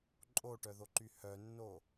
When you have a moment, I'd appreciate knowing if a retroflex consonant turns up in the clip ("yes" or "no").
yes